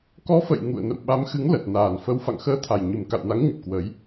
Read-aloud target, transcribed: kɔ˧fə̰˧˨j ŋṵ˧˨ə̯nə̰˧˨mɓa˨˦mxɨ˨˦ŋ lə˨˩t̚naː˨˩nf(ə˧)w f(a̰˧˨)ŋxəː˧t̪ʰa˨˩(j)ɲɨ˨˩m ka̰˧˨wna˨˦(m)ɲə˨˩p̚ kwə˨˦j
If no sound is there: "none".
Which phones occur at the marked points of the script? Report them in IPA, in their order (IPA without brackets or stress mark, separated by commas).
ə˧, a̰˧˨, j, ŋ